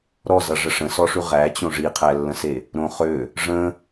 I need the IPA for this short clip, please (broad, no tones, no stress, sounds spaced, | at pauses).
ɾ ɔ z ʌ ʐ ə ʂ ə̃ s ɔ ʂ ʉ ʁ æ t͡ɕ õ ʐ i qʰ æ lː ə̃ s e | ɾ õ χ ø | ʐ ə̃